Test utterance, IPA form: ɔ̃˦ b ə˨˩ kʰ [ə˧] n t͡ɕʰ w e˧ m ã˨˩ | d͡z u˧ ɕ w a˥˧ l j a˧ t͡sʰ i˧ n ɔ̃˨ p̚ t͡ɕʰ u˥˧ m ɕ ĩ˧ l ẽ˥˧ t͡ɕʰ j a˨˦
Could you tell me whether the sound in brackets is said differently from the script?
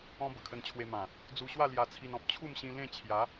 no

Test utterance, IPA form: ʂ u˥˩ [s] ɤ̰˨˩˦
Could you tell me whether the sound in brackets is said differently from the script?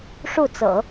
yes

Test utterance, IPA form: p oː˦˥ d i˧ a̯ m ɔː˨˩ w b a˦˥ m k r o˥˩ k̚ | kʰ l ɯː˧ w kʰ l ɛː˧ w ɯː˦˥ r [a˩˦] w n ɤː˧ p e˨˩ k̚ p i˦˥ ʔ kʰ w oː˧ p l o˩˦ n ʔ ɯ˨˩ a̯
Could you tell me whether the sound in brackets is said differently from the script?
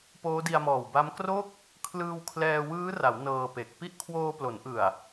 no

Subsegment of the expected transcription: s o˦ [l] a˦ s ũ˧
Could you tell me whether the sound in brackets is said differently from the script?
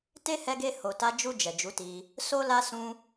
no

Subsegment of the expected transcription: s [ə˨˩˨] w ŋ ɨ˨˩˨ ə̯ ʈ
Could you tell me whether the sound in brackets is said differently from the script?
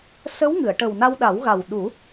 yes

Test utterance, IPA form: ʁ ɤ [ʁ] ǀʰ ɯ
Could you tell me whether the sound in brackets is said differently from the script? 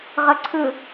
yes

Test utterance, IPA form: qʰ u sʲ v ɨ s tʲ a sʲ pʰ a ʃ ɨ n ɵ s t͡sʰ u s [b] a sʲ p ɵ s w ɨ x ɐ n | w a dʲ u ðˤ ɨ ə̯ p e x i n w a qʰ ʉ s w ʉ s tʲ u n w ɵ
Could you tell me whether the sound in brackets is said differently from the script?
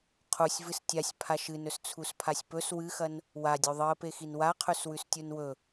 yes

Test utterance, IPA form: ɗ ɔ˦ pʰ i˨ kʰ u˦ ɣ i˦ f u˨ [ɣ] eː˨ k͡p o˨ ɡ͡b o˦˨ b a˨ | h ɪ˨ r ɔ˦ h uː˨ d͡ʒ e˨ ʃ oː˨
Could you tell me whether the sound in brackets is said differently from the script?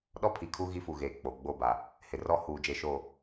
no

